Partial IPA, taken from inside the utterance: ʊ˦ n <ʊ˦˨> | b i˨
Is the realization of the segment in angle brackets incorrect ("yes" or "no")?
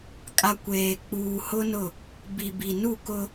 no